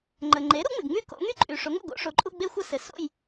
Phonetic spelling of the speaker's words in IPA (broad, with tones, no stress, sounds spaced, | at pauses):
ŋ͡ǃ ə˩ ŋ͡ǃ e˩˥ ɾ u˩˥ ŋ͡m ɪ˩ ɡ ŋ͡m y˦˨ k o̰˩˧ ŋ y˦ ǃʼ y˩ ʂ o˩˥ ŋ o̰˩ ɡ o̰˩˧ ʂ o˩˧ ǃʼ u˦˨ ɡ͡b e˦ xʷ ə˦˨ s ɘ˩ s o̰˦˨ j